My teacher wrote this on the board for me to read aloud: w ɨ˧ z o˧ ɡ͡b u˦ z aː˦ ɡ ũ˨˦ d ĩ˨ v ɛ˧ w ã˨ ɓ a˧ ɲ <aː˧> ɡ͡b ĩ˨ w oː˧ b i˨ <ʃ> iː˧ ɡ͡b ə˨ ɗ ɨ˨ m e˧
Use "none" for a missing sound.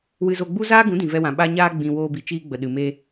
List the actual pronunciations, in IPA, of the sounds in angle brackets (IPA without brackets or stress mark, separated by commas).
aː˧, t͡ʃ